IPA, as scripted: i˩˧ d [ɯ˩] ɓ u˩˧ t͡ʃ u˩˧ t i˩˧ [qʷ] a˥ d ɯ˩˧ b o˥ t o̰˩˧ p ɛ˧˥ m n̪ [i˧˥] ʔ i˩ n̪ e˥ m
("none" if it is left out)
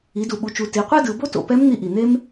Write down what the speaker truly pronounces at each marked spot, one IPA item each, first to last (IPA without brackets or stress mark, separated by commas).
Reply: u˩, qʷ, i˧